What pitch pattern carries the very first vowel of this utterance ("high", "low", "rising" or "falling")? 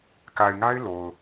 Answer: low